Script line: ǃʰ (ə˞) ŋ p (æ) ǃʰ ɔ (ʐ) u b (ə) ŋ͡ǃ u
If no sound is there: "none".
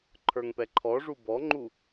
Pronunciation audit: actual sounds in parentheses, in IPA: ə˞, ɛ, ʐ, ɔ

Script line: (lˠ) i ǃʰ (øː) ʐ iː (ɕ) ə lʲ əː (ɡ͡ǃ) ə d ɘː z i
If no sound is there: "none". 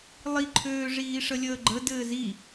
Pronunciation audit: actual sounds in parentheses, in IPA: lˠ, øː, ʂ, ɡ͡ǃ

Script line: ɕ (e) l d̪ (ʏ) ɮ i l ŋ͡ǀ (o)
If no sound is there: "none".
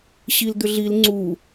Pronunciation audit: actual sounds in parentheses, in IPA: i, ʏ, u

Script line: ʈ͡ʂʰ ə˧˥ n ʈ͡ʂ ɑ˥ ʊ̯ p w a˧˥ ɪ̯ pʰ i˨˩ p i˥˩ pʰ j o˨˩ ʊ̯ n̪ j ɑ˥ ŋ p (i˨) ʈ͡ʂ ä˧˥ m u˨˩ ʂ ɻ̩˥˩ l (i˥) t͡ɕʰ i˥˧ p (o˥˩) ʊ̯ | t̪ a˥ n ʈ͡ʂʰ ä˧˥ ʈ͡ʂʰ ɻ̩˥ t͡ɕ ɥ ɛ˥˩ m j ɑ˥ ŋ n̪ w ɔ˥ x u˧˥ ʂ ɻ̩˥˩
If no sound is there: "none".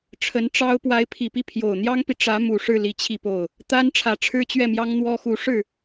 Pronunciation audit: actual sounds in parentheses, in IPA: i˨, i˥, o˥˩

